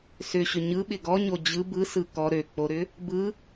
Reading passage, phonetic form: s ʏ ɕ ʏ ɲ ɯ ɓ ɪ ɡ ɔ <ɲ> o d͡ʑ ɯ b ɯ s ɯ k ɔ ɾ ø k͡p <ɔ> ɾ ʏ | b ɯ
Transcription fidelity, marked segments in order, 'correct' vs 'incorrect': correct, incorrect: o

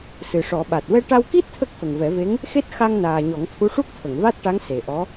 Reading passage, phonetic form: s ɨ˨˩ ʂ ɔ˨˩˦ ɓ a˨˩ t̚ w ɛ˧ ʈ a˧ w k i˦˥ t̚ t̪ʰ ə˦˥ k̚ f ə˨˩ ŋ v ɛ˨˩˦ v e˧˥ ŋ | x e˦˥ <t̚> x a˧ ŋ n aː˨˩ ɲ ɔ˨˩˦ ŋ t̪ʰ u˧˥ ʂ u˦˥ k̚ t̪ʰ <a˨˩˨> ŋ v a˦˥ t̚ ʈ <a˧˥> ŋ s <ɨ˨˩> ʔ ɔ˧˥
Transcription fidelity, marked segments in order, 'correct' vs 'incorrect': correct, incorrect: ə˨˩˨, correct, incorrect: e˨˩

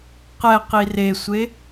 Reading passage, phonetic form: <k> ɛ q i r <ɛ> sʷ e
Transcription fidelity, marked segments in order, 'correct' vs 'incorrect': incorrect: q, incorrect: e

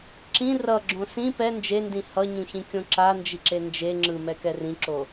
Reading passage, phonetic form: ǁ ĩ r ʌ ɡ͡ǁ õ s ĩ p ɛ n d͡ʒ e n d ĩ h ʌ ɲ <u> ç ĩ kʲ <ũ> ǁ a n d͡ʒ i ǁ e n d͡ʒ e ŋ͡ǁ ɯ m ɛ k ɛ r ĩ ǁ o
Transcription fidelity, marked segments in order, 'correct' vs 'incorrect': incorrect: ũ, incorrect: õ

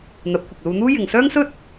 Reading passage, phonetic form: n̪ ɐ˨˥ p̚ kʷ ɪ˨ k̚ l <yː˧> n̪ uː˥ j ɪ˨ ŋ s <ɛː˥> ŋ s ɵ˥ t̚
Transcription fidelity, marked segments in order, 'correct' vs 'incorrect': incorrect: uː˧, incorrect: œː˥

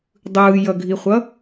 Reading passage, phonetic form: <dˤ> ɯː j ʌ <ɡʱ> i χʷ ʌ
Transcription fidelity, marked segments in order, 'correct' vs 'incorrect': correct, correct

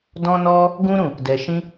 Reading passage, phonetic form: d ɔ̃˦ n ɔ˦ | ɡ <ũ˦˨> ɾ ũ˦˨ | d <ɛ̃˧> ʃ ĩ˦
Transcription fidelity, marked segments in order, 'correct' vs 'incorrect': incorrect: ũ˦, incorrect: ɛ˧

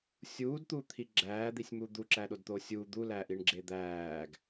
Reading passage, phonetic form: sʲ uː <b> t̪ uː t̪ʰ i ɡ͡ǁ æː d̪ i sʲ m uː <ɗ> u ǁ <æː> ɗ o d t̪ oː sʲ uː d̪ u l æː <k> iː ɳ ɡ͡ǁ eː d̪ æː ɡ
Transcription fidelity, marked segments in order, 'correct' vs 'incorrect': incorrect: d, incorrect: d̪, correct, incorrect: ʔ

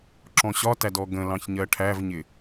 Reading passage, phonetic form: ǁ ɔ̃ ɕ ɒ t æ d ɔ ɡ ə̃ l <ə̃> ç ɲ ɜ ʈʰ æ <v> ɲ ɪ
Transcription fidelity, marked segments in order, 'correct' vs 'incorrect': incorrect: ɑ̃, correct

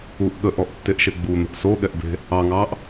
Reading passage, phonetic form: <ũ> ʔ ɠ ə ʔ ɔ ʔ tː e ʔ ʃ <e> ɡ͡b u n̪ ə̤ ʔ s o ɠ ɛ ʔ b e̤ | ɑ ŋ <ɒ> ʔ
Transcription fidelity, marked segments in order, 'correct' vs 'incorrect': incorrect: u, correct, incorrect: ɑ

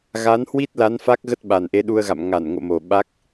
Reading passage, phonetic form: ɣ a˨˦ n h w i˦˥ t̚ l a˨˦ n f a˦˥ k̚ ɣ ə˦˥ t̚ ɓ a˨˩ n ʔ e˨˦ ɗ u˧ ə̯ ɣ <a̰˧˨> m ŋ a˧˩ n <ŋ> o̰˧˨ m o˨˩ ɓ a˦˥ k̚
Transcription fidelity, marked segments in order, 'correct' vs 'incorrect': correct, correct

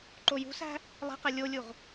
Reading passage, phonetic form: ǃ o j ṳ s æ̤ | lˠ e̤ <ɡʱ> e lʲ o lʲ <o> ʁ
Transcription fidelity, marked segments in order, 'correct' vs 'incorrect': incorrect: q, incorrect: u

